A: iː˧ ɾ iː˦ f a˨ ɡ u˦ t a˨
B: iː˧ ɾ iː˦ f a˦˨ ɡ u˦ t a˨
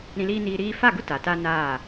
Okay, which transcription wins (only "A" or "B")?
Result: B